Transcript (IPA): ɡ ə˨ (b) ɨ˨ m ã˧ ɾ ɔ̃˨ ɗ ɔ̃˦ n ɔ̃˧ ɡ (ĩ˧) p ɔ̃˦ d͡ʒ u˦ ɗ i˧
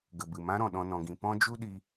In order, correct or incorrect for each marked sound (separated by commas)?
correct, correct